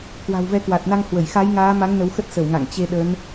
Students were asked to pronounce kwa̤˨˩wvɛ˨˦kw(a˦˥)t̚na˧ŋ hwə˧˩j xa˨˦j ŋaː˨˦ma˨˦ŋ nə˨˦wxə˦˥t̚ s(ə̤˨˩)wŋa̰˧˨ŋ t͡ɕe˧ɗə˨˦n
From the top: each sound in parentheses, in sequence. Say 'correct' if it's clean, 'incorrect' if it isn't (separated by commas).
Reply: incorrect, incorrect